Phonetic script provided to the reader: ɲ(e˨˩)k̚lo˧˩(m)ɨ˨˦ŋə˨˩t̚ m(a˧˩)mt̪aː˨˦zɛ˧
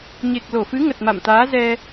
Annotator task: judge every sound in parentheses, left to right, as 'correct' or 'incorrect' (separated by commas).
correct, incorrect, incorrect